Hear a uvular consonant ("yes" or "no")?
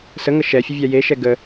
no